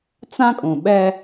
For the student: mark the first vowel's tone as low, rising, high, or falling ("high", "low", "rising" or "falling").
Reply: high